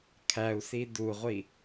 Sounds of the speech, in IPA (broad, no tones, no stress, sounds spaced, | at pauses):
kʰ æ u̯ s i d u ʁʷ i